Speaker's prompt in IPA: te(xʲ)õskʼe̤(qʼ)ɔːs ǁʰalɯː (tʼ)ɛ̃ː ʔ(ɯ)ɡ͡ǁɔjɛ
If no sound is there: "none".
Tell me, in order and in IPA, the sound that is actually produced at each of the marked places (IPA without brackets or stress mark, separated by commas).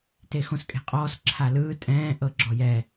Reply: x, qʼ, tʼ, ɤ